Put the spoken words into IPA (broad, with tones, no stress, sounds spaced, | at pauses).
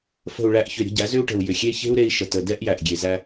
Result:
f ə̤˨ u̯ ɭ æ˨ ʔ ç ʏ˨ ɾʲ ə̤˦ ɟ æ˨˦ z ʏ˦ u̯ ʈ ə̤˨ u̯ j ʏ˨ xʲ e˦ ç e̤˦ u̯ ɾ e˦ i̯ ʃ ə˨ t ə˨ d ɛ˦ ʔ j æ˨ ʔ ɡʲ e˨ z æ˦